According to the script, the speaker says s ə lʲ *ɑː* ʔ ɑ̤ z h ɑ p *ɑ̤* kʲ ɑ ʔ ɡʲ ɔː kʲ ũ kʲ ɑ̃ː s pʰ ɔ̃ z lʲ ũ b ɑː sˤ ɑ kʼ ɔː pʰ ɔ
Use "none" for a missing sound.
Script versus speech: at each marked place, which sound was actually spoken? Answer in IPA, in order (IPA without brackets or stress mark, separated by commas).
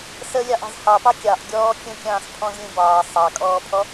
ɑ, ɑ